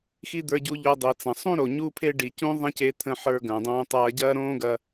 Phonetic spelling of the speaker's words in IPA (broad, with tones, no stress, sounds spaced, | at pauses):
x i˥ d̪ ə˞˧ ɟ u˧ ʎ o˧ dˤ i˩ t͡s ɐ̃˩ sˤ ũ˥ ɾ o˩ ɲ u˥ pʰ e˥ ɖ i˩ c ũ˥ ðˤ ɐ̃˥ c e˧ t̪ʰ ə̃˧ ħ ə˞˧ ɡ ɐ̃ː˩ dˤ õː˧ tˤ ɐː˧ ɟ ɐː˥ ɾ õː˥ ɡ ɐ˧